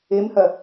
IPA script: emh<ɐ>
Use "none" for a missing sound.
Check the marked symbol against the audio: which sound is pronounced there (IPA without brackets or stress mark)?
ɐ